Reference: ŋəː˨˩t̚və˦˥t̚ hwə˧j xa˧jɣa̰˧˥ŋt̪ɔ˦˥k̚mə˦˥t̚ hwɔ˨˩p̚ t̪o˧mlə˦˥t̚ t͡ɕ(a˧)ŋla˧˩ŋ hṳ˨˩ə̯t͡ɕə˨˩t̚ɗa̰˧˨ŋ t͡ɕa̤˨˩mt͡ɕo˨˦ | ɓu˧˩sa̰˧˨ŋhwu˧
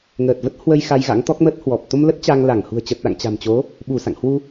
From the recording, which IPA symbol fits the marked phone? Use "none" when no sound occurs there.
a˧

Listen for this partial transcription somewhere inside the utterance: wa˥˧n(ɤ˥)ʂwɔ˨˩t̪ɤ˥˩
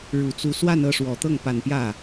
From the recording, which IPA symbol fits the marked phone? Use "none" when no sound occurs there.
ɤ˥˩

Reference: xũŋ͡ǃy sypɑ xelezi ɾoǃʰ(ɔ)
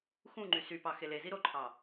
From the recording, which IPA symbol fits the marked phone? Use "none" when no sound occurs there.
ɑ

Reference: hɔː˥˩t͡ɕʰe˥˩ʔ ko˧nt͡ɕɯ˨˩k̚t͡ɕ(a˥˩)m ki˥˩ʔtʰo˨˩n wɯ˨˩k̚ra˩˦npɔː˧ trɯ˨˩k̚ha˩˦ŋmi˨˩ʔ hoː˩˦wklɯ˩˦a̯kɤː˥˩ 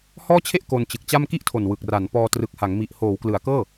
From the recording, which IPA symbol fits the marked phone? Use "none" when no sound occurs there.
a˥˩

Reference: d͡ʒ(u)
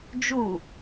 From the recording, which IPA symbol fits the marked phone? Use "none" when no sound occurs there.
u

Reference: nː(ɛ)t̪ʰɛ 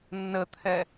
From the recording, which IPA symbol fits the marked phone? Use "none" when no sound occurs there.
ə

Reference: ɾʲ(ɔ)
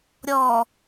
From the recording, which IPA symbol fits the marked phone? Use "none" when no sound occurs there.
ɔ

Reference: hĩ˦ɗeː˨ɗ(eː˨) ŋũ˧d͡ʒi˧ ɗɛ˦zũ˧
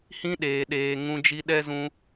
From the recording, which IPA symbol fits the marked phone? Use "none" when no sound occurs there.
eː˨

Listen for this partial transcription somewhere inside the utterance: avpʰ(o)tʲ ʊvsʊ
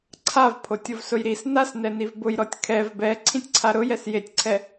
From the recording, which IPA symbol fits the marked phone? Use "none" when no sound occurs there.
o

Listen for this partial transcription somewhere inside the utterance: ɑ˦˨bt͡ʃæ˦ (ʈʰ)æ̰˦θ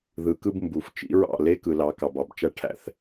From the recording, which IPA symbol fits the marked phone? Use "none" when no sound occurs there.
ʈʰ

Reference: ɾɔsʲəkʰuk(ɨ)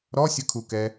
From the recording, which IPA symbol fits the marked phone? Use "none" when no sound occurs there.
ɛ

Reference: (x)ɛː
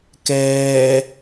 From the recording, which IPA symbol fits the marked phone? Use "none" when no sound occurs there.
k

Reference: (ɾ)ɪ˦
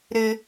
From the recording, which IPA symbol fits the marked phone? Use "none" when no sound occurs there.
ɾ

